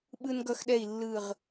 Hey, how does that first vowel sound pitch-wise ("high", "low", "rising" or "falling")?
high